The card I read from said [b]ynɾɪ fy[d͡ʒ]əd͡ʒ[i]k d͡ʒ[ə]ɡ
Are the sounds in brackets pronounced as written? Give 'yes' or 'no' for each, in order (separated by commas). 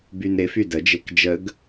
yes, no, no, yes